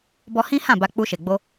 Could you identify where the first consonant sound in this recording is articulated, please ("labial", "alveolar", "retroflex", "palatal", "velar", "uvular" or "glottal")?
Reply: labial